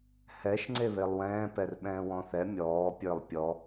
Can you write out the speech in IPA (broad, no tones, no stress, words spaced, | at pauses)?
hɛʃ ŋ͡ǀeβelˠwɛ̃ːpɛr ɓɛ̃ːwɔ̃θɛ mʲɔːpʲə˞lˠ pʲɔ